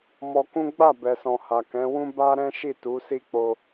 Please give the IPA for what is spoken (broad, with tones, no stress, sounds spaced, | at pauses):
m ɔ˧ k ũ˦ ɡ͡b a˦˨ b ɛ˨ s ɔ̃˨ h a˨ k ɛ̃˨˦ w ũ˦ b a˦ ɾ ɛ̃˦ ʃ i˦˨ t u˨˦ s i˦ k͡p o˧